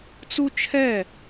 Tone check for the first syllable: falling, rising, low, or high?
high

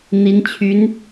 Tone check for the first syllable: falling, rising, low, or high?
rising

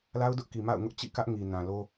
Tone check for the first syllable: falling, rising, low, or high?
high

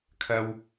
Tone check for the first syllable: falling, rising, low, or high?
low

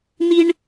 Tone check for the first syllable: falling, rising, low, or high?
high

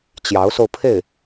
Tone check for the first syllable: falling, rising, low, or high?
rising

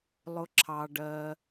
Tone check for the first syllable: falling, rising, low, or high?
high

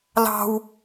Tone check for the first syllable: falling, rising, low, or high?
high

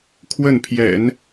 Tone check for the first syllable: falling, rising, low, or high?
falling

